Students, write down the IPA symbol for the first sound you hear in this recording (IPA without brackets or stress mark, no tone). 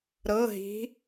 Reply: ɾ